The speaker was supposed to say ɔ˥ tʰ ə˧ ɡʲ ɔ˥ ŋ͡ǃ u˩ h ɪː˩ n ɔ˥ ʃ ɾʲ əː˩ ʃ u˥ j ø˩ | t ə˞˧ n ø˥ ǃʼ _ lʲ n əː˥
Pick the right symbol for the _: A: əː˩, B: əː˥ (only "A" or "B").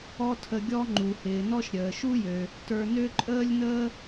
B